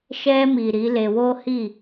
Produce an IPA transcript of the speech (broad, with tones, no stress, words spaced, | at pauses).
ʃɛ˧mi˨ ɾi˨˦le˧wo˦ hi˦˨